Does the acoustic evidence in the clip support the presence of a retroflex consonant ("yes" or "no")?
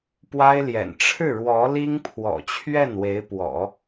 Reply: yes